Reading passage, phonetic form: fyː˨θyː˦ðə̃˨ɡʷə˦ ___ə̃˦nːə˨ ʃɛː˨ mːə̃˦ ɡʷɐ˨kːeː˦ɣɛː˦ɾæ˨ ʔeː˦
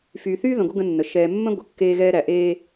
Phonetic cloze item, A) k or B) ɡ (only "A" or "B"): B